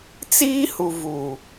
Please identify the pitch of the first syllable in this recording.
high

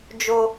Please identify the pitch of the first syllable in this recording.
high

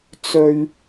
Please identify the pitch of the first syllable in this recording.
low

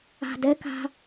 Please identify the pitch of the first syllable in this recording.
low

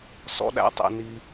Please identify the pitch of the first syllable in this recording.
high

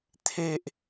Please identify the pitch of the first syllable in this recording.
high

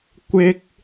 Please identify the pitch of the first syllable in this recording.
high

